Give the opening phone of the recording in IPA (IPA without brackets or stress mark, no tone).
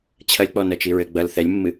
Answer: t͡ɕʰ